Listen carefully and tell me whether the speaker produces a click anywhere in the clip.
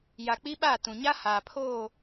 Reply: no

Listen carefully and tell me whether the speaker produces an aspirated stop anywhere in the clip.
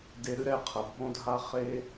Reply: yes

